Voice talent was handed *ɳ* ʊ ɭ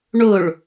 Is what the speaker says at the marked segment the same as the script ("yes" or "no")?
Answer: yes